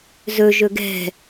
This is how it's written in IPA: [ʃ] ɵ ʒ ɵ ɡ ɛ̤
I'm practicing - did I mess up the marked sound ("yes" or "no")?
yes